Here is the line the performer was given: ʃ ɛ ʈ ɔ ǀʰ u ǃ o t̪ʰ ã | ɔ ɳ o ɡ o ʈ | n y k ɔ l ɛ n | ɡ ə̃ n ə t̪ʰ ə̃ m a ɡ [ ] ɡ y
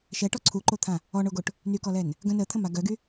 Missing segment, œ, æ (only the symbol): œ